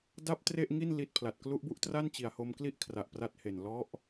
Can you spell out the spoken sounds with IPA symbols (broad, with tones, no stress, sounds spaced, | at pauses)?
d a˥˩ p̚ t r e˥˩ ʔ ŋ i˥˩ n l i˦˥ t̚ pʰ l a˨˩ t̚ k l u˦˥ ʔ b u˦˥ ʔ t r a˥˩ n t͡ɕ i˨˩ a̯ h o˧ m k l i˥˩ ʔ kʰ r a˨˩ ʔ p r a˦˥ t̚ h e˨˩ n l ɔ˦˥ ʔ